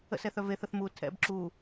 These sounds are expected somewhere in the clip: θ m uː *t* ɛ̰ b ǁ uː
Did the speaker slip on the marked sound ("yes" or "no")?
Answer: yes